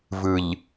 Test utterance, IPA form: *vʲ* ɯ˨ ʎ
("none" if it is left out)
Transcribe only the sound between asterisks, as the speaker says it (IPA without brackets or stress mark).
v